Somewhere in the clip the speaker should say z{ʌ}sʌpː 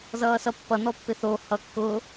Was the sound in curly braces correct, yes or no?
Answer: no